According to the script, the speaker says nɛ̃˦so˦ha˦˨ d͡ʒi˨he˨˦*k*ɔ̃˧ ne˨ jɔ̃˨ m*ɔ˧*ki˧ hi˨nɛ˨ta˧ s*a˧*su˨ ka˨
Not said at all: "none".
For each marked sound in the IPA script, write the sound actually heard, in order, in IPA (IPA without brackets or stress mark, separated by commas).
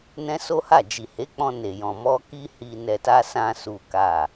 k͡p, ɔ˧, ã˧